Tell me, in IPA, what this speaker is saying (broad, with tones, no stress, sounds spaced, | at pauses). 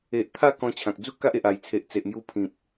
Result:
e˨ ʔ t̪ʰ a˥˧ k ɔ̃˧ t͡ɕʰ ã˨ k̚ d͡z u˦ k a˦ ʔ e˨ ʔ a˨˩ j t͡sʰ e˨ ʔ t͡s e˨ ʔ m j u˧ pʰ ĩ˨ p̚